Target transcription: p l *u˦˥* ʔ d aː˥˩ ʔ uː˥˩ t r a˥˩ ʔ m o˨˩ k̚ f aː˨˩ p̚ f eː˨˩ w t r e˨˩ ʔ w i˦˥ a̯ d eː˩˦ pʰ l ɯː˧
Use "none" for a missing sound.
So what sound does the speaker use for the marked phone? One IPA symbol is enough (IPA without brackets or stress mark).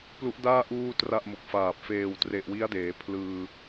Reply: u˦˥